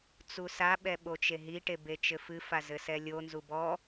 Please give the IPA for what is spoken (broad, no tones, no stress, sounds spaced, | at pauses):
t͡s u s a ɓ ɛ ɓ o t͡ʃ e ɦ i ʈ e b e t͡ʃ ɘ f ɨ f a z ɘ s ɛ lʲ o n z u b ɔ